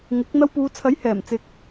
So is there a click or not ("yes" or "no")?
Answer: no